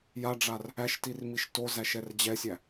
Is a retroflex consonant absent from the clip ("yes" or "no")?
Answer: no